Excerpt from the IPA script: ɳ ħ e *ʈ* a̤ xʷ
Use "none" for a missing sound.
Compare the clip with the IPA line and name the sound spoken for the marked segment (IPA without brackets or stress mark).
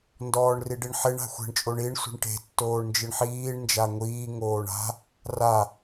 ɳ